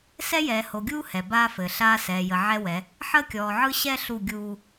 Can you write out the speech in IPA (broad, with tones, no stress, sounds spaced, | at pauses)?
s ɛ˦ j ɛː˨ h o˨ ɡʲ uː˦ h ɛ˨ b aː˦ f ɘː˨ ɬ aː˦ s ɛː˨ j ə˨ ʕ ɛ˦ w ɛ˨˦ | ħ əː˦ kʲ ɔː˨ ʕ ɯ˦ ɕ ɛ˦ ɬ u˦˨ ɡʲ uː˦